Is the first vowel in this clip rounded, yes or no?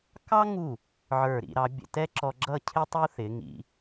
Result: no